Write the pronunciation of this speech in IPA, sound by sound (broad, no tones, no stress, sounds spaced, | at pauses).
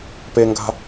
p e ŋ ɡ a̤